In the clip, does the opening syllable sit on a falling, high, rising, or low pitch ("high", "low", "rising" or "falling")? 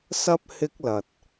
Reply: high